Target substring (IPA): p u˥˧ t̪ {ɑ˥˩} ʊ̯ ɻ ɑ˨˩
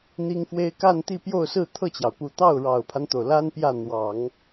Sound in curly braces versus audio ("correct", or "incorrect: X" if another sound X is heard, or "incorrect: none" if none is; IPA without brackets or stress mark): correct